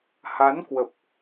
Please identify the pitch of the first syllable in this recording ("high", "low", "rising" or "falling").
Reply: rising